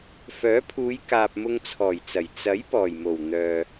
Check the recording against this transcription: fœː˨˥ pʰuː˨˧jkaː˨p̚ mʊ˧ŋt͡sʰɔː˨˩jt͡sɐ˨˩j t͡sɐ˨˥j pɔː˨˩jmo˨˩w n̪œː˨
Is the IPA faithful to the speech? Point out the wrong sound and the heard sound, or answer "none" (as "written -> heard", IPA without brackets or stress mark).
none